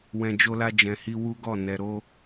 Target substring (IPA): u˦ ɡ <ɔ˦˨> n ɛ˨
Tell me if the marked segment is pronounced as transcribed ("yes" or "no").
yes